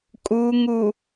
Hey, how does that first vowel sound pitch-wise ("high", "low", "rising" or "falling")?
low